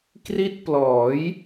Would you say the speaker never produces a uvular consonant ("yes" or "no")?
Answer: yes